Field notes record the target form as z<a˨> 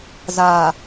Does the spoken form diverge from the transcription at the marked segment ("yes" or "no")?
yes